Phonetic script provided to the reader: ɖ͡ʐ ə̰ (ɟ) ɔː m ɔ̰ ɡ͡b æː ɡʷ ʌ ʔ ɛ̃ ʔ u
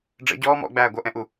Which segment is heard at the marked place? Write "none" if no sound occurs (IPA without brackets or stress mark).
ɟ